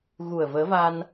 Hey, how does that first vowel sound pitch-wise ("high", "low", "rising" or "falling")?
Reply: low